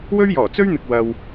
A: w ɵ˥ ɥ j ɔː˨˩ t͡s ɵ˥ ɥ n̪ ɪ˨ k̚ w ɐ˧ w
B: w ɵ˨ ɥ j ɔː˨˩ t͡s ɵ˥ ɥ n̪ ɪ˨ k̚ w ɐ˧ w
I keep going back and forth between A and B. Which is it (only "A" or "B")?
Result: A